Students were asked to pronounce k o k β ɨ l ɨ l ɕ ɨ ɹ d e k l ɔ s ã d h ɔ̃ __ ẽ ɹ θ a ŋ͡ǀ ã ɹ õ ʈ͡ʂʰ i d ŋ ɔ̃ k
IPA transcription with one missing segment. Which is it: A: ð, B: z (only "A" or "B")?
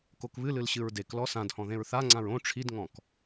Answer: A